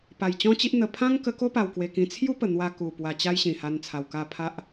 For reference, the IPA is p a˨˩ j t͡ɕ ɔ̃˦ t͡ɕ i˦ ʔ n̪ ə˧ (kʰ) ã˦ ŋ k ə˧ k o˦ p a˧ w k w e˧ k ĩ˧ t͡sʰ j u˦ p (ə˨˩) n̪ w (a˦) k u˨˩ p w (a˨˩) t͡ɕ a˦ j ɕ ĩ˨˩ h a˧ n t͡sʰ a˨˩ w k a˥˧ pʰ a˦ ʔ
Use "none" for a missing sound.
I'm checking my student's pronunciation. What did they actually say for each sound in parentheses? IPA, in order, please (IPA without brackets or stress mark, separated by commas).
pʰ, ə˨˩, a˧, a˧